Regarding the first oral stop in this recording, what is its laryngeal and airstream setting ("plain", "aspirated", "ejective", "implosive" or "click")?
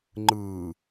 click